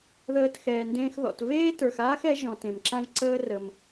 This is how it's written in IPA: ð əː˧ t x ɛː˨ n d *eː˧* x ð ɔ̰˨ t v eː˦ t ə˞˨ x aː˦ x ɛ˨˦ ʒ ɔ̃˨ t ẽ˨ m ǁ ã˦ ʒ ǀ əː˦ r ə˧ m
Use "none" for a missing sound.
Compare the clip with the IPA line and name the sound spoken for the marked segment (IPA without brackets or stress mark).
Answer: ẽː˧